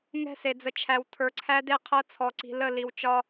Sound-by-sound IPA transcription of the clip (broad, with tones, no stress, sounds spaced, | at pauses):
ŋ ɛ̤˦˨ s e˨ d͡z ə˨ t͡ʃʰ æ˨ w tʰ ə˞˨ ǀʰ æ˦ d e˦ qʰ ɤ˦ t͡sʰ ɔ˨ ǀ i̤˨ l ə˦˨ l i˨ w t͡ʃ ɒ˦